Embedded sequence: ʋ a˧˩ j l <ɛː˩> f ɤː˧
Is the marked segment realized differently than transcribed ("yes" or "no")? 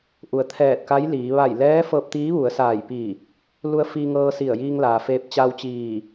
yes